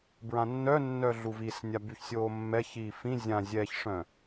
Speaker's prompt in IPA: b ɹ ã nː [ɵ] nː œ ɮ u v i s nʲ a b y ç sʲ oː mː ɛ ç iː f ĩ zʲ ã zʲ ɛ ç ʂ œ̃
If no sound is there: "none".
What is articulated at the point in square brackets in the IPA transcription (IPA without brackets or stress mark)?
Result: œ